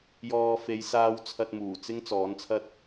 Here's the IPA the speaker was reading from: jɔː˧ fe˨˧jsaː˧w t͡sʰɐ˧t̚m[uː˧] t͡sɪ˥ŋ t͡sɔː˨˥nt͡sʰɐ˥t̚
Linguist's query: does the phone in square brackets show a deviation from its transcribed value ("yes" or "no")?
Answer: yes